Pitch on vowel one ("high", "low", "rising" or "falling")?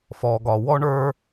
low